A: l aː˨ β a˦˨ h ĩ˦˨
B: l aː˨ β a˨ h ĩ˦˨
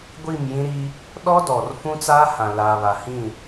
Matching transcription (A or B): B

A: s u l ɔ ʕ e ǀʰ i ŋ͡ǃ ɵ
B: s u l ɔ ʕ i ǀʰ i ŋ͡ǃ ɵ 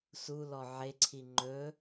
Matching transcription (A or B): A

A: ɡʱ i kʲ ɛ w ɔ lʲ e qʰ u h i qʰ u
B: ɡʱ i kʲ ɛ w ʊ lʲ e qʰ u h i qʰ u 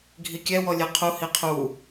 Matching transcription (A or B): A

